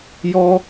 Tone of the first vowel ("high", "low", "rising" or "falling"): high